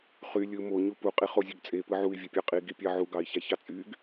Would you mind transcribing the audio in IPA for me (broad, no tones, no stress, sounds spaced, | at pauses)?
χ y lʲ ɯ m o ɲ u p u qʼ i χ o zʲ ø ɡ t͡sʼ e p ɯ ʕ u i̯ vʲ e pʲ ɑ qʼ i ɡ i pʲ ɑ ʕ u ɡ ɑ i̯ ç æ ç ɑ t͡sʼ y ɡ